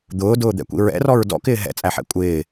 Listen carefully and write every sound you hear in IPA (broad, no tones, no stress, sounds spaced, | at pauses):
d̪ ʊː d ʊː d̪ ɛ̰ kʷ ḭ ɹ ɛ̰ r ɔ ɹ d ɔ̰ k ɪː ɦ ɛ̰ t͡sʼ æ ħ ɛ̰ kʷʼ ɪː